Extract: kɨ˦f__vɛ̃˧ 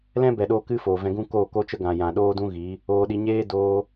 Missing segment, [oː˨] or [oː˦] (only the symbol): oː˨